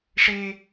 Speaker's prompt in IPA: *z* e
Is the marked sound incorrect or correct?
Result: incorrect